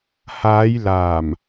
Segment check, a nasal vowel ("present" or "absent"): absent